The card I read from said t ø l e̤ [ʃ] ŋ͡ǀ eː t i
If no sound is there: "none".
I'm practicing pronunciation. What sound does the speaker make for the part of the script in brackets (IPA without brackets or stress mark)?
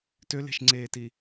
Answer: ʃ